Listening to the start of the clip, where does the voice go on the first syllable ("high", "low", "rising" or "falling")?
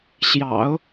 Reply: low